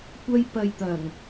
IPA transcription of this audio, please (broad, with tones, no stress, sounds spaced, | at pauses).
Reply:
kʷ ɐ˥ j p ɐ˧ j t̪ ɐ˨˩ ŋ